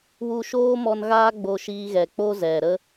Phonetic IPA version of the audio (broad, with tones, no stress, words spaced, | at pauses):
wu˧ʃoː˦mɔ˧nɣaː˦ ɡ͡bo˧ʃiː˧ɣɛ˨ k͡po˦zɛ˨ɾə˦